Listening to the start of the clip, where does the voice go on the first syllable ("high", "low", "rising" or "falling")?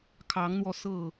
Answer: rising